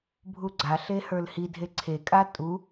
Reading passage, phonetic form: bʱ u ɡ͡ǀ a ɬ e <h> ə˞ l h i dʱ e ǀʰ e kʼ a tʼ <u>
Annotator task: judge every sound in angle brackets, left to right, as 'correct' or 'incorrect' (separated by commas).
correct, correct